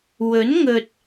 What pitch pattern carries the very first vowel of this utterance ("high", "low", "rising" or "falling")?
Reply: rising